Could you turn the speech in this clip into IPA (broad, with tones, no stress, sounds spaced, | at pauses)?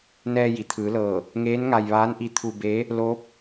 n ɛː˧ j i˩ t̪ʰ ɯː˩˧ l ɤː˧˩ | ŋ eː˧˥ n ŋ a˧ j ʋ aː˧˥ n ʔ i˧ t̪ʰ u˧ b e˧˥ | l oː˧˥ p̚